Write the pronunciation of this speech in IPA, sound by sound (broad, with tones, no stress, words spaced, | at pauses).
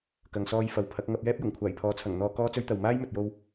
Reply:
kɐ˨ŋsɔː˧j fɐ˨˥wpʰɐ˨˥k̚ ŋɐ˧p̚jɛː˥p̚jʊ˨˩ŋ kʷʰaː˨˩jpʰɔː˨˥t͡sʰɐ˨˩ŋn̪ɔː˨˧ kɔː˥t͡sɵ˥ɥt̪ɐ˨w maː˥jmɵ˨t̚jo˧w